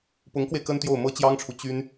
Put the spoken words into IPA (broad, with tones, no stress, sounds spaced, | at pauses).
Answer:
p ʊ˧˥ ŋ k w e˧ ɪ̯ k ə˥ n t̪ j o˥˩ ʊ̯ m ɤ˥ t͡ɕ j ɑ˥ ŋ ʈ͡ʂʰ u˨ t͡ɕ y˥ n